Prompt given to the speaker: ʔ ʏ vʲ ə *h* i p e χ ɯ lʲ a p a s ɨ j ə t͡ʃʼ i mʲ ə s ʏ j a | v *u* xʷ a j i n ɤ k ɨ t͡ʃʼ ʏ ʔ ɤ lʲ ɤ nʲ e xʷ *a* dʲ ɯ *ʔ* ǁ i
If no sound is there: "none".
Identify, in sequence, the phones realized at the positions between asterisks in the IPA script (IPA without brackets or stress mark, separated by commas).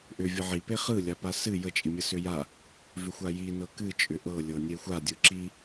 ʕ, ʏ, a, none